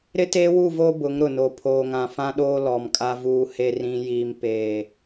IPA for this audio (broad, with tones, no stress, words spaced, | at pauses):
ɾɪ˦teː˦wu˦˨vo˦ bʊ˨˦ŋɾʊ˨no˨ pʰoː˨ŋã˨fã˦ɗoː˦ lɔ˨mkʼa˦vuː˦he˦ rĩ˦jiː˦mpeː˦˨